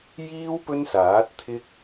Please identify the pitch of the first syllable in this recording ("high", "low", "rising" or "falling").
high